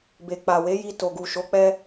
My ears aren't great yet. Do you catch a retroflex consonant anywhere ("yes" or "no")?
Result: no